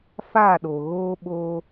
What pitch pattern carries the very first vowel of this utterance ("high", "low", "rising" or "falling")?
falling